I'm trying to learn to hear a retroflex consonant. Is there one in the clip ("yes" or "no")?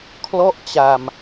no